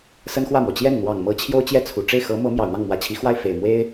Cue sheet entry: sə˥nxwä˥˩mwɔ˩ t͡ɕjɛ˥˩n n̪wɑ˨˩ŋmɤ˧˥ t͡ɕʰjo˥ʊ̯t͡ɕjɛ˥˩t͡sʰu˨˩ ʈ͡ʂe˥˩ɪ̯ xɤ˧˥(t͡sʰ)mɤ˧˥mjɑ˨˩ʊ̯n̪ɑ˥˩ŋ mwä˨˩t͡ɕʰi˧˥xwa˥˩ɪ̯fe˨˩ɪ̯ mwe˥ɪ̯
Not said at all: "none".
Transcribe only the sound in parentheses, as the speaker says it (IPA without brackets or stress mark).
none